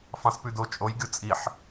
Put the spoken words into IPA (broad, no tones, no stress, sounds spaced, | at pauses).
f ɑ̃ s p ʉ d o t͡ʃʼ o j ɡʲ o t͡sʼ i ħ